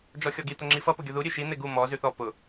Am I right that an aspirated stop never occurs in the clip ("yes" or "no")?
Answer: yes